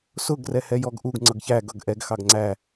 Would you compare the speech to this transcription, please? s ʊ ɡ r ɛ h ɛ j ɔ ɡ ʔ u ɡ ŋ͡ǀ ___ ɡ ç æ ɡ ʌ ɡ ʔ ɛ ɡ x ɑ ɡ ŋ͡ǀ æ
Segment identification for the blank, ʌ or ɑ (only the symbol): ʌ